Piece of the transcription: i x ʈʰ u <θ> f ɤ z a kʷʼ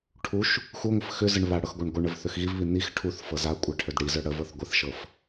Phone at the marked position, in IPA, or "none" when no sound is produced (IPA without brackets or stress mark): θ